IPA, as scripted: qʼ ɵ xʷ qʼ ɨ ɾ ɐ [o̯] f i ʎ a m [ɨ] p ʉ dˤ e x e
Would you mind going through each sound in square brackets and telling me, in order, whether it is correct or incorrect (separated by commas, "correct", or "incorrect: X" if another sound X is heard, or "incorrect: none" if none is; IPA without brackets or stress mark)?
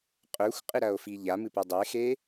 correct, correct